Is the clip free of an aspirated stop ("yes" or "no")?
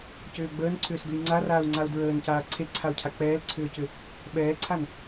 no